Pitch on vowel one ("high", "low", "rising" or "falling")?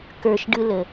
low